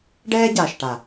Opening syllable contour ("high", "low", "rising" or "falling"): high